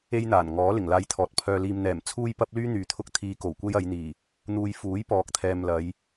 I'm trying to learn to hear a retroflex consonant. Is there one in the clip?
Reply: no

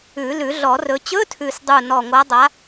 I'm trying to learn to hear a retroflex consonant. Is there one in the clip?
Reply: no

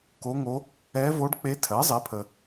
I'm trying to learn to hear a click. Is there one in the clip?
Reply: no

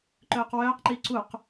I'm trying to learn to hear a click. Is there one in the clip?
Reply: yes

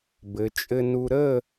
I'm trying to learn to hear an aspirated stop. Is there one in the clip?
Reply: no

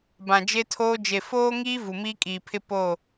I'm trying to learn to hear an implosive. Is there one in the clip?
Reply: no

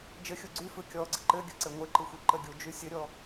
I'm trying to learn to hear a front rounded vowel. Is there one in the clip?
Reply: yes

